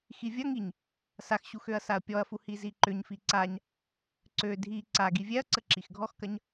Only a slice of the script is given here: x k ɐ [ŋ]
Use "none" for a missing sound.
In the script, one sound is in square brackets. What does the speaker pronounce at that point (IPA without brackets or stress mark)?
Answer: ɲ